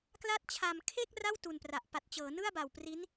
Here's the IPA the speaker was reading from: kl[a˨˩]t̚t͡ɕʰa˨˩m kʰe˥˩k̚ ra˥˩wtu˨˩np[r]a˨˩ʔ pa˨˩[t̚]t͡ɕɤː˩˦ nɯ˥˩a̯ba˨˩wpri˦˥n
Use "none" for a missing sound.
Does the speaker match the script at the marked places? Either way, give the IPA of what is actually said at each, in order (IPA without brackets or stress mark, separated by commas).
a˦˥, r, t̚